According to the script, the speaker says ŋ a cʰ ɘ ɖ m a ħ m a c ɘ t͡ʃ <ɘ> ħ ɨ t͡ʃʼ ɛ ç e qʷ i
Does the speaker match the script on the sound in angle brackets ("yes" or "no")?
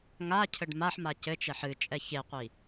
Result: no